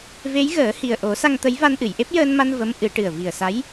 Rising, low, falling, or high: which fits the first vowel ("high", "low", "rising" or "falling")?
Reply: rising